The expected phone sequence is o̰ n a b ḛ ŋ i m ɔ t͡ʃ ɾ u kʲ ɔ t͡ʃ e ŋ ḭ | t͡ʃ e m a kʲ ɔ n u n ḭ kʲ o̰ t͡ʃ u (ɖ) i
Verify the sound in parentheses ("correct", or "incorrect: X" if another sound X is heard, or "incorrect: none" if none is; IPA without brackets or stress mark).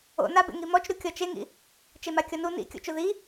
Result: incorrect: ð